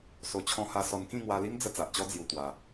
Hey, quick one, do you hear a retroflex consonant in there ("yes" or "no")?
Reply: no